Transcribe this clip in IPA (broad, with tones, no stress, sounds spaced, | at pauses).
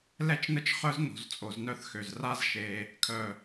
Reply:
l ɛ˦ t͡ʃ n ə˦ t͡ʃ χ œ˦ z n o̤˨ z t͡sʼ o˨ z n œ˦ θ x ø˨ z r a˦ z ʃ e˦ | kʰ œ˨